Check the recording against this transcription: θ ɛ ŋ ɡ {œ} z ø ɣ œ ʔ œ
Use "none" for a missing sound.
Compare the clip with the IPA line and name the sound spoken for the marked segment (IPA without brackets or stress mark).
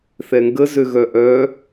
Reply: ə